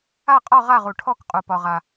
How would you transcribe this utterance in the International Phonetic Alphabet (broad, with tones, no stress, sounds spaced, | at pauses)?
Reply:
a˥˨ qʼ ɒ˥˨ ʁ a˥˨ ʁ u˨ ʈʰ ɔ˥˨ k qʼ u˨ p ɒ˨ ʁ a˨